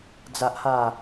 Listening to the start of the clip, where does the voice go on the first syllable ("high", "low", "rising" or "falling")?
low